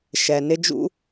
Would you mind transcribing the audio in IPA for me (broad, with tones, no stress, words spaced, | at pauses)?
ʃɛ˩nɪ˧ d͡ʒṵ˧